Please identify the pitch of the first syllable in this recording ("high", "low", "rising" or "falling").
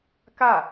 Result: falling